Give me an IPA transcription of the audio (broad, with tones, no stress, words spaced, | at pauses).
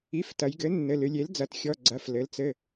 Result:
i˩˥f tɐ˩˧jɡɘ˩˥nːɘ˩˧˩ lɨ˩˧lʲe˩˥ld͡zɐ˩˥t xʲɔ˩˧˩ɡ͡ǀɐ˩˧˩f lɘ˩˧lt͡sɘ˩˧˩